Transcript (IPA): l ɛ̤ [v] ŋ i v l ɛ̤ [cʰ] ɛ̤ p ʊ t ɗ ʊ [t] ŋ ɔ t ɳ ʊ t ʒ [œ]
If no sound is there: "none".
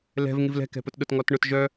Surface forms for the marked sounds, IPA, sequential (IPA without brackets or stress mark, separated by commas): v, k, t, œ